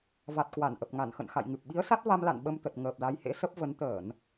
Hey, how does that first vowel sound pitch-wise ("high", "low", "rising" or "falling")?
low